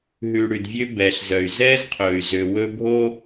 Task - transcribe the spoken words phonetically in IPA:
ɦʉ˨ ɽʉ˨dvʲø˦bɛː˨ɬzœ˨y̯ zɛː˦zqʰɵː˨y̯zø˨ wɵ˦bʱo˦

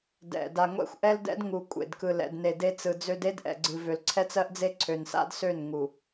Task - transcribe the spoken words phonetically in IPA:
dɛ̰˨ da˨ŋʷɛ̰˦˨xʷʔɛ˦ldɛ̰˦d ŋu˨ kʷʼḛ˨dkɯ˨l ɛ̰˨dne˨ de˦t͡sɯ˨d͡zø˦d e˦dʔɛ̰˨ɡ͡ǀɨ˨ vø˨lǀʰɛ˦t͡sɜ˦ʔd͡ze˦ ǀʰø˨nsa̰˦dsø˦˨n ŋu˨

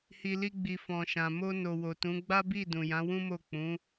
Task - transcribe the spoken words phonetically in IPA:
hi˨li˧ ɡ͡bi˨fɔ̃˨ʃã˨ mo˧no˨ wo˨tũ˨˦ ɡ͡ba˦bi˦˨ dũ˨jã˨˦ wũ˦mo˦˨ k͡pũ˨˦

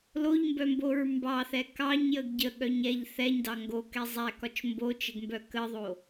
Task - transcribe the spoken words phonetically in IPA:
loʎmbœmboɹ mbɑθɛ kɑɲjəɡ ɟəɠœɲ ɛʎ θɛɲdɑ ŋɡokɛ zˤækɒt͡ʃ mbot͡ʃəɡmbœ kəðˤo

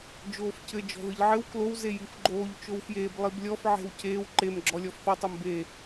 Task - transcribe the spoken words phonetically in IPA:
d͡ʒoːfcɘ d͡ʒɔ̤ðɨʎʕɘw klow zejifɡ͡ǃoːʎ t͡ʃowfjeːb lˠiblʲɔf ʕe̤wceːw ǃem ɡ͡ǁɔlʲɔfθɔ tˤombe

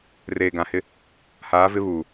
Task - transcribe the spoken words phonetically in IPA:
reː˨ɡã˨hɪ˦ | haː˨˦vɪ˦βuː˨

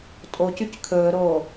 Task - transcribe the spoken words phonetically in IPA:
tʼocyc kʰɵːɾoː

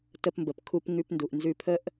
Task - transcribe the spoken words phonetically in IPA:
tə˧pmbə˩pkʰu˧p ŋʉ˧pndu˩ʔnzʉ˧pʰə˥ʔ

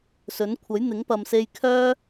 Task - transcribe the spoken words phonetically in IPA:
sɵ˨˥nkʷʰɐ˨˥j n̪ɪ˨˥ŋpɐ˨mse˧j kʰœː˥

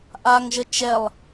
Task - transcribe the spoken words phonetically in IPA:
ʔaŋʒə t͡ʃɛlˠ

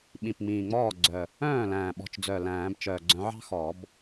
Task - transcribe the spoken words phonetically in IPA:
ɓĩ˨˩pŋ͡mĩː˨˩ŋ͡mɔː˥˩ɡ͡ǀœ˨˩ | œ̃ː˥˩læ̃ː˨˩ɓɔ̤˨˩t͡ʃd͡zœ˨˩ læ̃ː˨˩˦bt͡ʃœ˨˩ ɡ͡ǀœ̃˨˦ʕɑ̤˥ xɔ˨˩˦b

